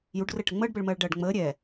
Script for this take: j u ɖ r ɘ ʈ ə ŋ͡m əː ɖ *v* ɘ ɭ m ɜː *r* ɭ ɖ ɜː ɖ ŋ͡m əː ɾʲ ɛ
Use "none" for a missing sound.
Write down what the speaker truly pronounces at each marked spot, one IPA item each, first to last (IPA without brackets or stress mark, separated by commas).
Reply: b, none